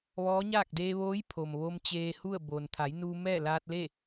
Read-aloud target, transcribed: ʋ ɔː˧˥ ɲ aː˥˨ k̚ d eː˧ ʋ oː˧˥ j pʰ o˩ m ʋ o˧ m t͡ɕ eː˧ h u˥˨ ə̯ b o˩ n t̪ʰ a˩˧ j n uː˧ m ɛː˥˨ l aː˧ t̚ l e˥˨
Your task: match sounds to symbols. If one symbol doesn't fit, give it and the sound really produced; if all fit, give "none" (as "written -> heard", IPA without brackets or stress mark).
none